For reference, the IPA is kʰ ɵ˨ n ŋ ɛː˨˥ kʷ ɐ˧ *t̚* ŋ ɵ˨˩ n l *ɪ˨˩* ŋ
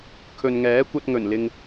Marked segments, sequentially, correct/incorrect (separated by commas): correct, incorrect